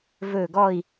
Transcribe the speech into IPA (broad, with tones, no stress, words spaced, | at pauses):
vɵ˥˧ ɡɔ˥˧i̯